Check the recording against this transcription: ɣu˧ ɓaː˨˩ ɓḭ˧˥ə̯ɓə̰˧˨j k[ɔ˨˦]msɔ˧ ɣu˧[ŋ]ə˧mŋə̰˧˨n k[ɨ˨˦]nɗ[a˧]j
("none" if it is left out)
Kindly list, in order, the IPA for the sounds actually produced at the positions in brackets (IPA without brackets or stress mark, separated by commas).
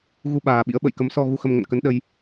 ə˨˦, x, ə˨˦, ə˧